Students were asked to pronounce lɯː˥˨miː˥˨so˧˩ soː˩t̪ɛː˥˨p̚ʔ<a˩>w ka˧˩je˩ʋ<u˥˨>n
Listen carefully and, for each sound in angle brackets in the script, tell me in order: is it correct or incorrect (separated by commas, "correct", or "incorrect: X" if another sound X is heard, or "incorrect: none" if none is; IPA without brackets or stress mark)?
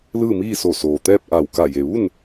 incorrect: a˧˩, correct